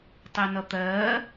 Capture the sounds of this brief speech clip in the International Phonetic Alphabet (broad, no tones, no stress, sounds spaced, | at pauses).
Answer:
tˤ ɛ n ʌ t̪ ɜː